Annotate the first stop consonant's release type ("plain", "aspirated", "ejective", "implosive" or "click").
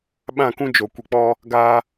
implosive